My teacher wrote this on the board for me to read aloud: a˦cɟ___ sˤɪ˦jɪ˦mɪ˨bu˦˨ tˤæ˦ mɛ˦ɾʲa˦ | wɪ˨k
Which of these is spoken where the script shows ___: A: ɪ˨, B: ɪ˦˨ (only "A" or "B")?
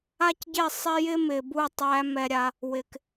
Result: B